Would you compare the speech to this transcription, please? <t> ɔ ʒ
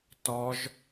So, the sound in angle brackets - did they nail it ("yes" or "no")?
yes